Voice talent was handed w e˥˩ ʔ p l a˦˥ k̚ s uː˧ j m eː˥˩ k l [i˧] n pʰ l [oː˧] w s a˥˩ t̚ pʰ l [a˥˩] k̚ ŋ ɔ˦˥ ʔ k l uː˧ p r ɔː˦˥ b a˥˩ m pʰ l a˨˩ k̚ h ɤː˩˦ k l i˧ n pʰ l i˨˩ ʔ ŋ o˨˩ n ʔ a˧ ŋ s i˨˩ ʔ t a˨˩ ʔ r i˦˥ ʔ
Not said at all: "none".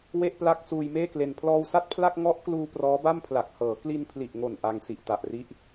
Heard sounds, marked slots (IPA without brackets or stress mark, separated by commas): e˧, ɔː˧, a˥˩